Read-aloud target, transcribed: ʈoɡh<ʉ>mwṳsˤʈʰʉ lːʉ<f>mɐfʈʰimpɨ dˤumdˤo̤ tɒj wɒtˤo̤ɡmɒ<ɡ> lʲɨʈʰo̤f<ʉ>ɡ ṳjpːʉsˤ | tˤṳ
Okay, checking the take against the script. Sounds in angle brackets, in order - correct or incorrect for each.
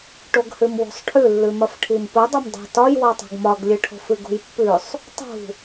correct, incorrect, correct, incorrect

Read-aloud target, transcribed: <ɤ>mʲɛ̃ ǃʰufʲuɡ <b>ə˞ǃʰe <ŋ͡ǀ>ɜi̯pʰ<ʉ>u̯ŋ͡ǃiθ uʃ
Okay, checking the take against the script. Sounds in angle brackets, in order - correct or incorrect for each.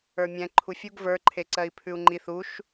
incorrect, incorrect, incorrect, correct

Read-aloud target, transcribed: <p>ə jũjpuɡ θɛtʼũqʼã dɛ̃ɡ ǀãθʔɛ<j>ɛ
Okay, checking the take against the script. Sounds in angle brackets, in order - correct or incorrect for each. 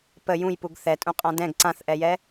correct, correct

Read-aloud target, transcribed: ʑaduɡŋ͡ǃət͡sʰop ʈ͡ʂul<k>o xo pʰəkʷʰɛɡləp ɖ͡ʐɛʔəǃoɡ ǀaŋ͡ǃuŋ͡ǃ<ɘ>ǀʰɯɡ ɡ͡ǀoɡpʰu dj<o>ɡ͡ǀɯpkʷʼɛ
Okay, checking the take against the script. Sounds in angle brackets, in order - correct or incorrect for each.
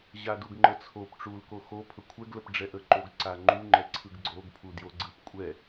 correct, incorrect, correct

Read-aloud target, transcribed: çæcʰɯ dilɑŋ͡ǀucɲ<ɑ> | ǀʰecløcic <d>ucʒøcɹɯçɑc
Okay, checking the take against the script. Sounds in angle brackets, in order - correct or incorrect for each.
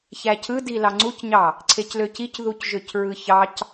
correct, incorrect

